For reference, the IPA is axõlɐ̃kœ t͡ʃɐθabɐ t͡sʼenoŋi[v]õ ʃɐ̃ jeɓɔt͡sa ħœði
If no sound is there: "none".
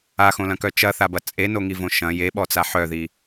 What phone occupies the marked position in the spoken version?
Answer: v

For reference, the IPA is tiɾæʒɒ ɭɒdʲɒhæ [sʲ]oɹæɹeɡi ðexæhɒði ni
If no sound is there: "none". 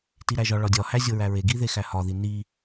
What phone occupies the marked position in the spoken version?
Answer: zʲ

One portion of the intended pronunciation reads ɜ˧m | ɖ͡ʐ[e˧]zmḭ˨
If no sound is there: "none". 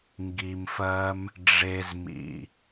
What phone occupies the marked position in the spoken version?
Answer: e˧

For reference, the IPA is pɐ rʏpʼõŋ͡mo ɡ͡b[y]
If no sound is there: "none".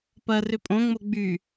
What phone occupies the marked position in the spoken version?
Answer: y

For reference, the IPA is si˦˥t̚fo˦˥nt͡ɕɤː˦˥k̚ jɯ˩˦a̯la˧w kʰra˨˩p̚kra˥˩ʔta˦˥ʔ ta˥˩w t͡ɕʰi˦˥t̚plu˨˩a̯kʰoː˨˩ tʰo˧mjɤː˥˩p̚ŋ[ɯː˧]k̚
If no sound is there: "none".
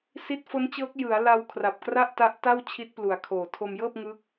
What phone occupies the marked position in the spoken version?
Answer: ɯː˦˥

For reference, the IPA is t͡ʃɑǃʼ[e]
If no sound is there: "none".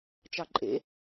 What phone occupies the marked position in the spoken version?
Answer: ḛ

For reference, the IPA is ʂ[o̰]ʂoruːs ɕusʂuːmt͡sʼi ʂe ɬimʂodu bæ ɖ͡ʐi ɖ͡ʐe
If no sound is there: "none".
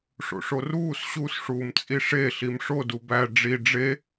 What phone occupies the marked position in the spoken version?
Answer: o̰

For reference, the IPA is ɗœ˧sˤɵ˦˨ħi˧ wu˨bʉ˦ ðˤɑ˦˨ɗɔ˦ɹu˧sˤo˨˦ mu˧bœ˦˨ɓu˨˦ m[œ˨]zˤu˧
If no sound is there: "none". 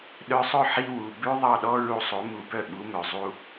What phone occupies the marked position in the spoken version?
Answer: œ˨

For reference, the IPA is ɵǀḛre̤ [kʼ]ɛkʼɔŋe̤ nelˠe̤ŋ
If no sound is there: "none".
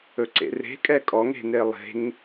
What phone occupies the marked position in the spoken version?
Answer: kʼ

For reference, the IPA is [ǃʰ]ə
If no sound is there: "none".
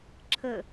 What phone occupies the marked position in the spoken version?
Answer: ǁʰ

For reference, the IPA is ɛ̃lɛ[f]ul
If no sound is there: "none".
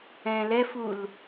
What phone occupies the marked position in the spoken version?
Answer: f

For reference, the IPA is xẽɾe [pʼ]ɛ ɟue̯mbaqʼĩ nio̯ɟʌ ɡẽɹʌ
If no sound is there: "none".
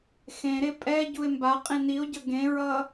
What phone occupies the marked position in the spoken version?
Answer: pʼ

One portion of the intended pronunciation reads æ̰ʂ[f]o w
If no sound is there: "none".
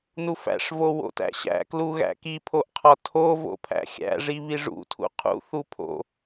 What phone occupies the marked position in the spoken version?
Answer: v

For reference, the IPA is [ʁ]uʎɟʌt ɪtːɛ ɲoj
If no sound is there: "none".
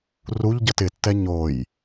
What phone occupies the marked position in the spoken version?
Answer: r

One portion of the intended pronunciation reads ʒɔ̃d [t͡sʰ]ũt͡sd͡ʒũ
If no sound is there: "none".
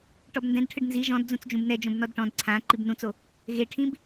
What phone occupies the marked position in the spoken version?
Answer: d͡z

